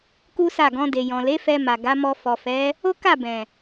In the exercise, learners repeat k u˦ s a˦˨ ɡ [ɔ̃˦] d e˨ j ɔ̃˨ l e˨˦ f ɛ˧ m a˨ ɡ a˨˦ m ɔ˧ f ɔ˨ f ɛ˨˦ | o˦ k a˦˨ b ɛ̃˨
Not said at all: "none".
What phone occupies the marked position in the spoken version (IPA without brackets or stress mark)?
ɔ̃˧